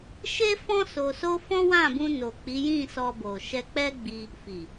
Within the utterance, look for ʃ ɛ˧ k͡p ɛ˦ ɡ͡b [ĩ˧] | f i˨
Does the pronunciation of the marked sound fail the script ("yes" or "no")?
yes